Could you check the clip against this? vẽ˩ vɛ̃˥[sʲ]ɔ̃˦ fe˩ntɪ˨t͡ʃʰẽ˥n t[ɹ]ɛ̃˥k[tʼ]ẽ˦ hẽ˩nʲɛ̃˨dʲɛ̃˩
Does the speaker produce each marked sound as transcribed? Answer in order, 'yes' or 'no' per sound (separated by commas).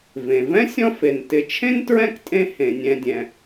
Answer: yes, yes, yes